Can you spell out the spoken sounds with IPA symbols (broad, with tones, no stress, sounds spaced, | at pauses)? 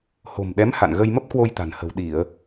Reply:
h o̤˨˩ m ɗ ɛ˨˦ m h a̰˧˨ n ɣ ə˧ j m ə˦˥ p̚ k w o˧ j t̪ a̤˨˩ n h ə̤˨˩ w ɗ i˧˩˨ ə̯